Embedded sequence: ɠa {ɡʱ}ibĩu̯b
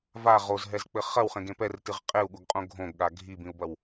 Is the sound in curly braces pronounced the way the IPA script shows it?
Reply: yes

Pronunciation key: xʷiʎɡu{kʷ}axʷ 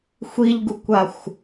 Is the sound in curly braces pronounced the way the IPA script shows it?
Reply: yes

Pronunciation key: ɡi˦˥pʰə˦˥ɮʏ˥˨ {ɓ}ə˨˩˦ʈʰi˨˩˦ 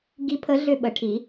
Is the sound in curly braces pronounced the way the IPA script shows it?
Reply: yes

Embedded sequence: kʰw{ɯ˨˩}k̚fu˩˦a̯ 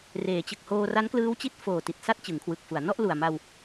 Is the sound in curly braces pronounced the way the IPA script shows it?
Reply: yes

